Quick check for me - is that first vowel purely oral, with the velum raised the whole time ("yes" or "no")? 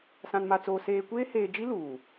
no